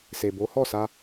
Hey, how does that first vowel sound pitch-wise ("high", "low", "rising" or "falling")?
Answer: low